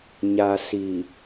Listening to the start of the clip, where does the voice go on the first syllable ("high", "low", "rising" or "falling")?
low